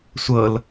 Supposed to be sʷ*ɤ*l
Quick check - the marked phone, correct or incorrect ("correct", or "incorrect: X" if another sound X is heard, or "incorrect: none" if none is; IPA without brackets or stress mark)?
correct